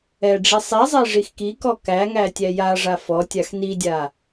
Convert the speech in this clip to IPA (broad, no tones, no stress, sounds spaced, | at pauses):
ɛ ɖ͡ʐ i sˤ i zˤ e ʐ i x k i k ɔ k æ ŋ æ tʲ æ j a ʐ a f ɔ tʲ a x n i dʲ a